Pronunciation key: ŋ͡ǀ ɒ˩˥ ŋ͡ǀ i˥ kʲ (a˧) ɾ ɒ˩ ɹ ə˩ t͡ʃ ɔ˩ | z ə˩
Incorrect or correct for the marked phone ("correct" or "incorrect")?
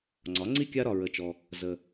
correct